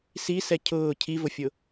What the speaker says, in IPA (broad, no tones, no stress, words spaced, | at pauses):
sisɛ cʰʊː cʰivʊfʲʊ